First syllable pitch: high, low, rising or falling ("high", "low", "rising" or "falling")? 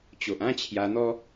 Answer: low